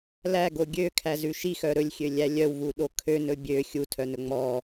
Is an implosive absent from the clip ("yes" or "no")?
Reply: no